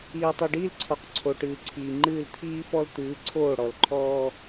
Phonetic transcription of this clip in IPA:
iː˨tˤi˨ɖiː˦lǀʰɔ˨q ǀʰo˨ʈɨː˨ǀʰiː˨ŋ͡ǃɨː˦˨l t̪ʰiː˦fɔ˦l t̪ɨː˨˦ǀʰoː˦˨ ɽɔ˨lǃʰɔː˦

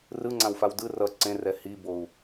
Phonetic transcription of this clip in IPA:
rɯŋ͡ǀãwfaw dɯ rʌ ǀẽrɛ hibou̯

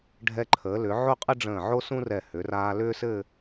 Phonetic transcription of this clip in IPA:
ɖʱɛ˧ǃʰəː˩˧lʏ˩˧ ʕo˥˧qʼə˥ɖ͡ʐə̃ː˧˩ ʕo˥sũ˥rɛ˧˩ hʏ˩˧raː˧ lʏː˥sɘ˥˧

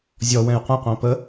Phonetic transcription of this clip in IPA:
zʲɔ wɛ̃jqʷĩqʷæ̃ pə

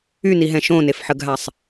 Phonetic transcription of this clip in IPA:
yniɦɛ̃ ʃõnefħəɡɦasˤ

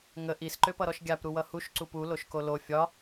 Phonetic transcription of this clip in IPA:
ŋə ʔis ǃøpʌɾɔʃɡʲap ɾuwʌhuʃ ǀupu loʃkolo fʲɒ

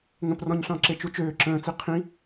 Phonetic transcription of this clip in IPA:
ŋə̃prɔ̃ɲɬɑ̃ǁe t͡ʃut͡ʃøː ǁə̃ːt͡si qʰĩ

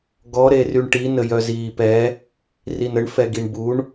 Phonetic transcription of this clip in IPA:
ɡɔ ɾeryɳʈi nəjœziːpɛ | rinəɳ fɛɡiɳbuɳ

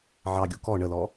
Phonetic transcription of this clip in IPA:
ʕɑɡʲu kɔ ɳəlɔ

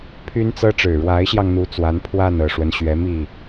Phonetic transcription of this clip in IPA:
pʰy˥nt͡sɤ˥ ʈ͡ʂɻ̩˨˩ɻwa˧˥ɪ̯ɕjɑ˧ŋn̪u˧˥ t͡swa˧˥n pʰwa˥˩nɤ˨˩ʂwə˦n ɕɥɛ˧˥mi˥˩

